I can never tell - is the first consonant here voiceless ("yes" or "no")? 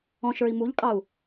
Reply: yes